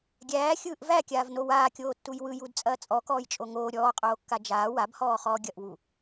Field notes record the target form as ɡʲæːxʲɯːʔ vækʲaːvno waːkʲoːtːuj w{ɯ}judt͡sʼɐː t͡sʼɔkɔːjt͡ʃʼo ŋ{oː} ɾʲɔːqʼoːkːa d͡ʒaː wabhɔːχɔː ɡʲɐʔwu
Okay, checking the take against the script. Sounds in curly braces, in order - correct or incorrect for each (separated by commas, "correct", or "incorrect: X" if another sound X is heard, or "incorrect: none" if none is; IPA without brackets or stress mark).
correct, correct